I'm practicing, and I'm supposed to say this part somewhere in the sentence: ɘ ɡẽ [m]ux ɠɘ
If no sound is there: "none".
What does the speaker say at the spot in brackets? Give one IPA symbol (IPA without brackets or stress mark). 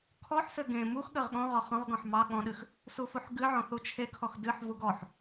m